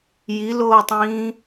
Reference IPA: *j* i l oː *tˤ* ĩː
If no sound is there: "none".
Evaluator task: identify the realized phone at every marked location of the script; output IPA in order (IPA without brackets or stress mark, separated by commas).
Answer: j, tˤ